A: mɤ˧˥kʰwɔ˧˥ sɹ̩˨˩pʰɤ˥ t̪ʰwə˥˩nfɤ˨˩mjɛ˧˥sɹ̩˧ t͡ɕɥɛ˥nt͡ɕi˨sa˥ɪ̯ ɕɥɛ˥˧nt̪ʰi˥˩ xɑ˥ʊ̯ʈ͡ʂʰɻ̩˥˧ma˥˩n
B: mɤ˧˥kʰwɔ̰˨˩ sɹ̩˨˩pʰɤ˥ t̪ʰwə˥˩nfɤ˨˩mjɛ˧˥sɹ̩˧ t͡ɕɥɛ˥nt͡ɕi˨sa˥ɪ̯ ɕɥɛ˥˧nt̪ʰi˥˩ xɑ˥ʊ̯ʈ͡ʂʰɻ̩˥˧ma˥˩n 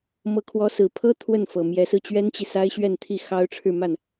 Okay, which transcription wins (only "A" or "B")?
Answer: A